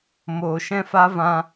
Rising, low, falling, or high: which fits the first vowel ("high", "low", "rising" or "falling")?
low